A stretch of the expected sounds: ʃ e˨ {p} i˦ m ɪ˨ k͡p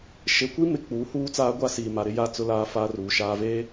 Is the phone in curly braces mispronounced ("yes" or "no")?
yes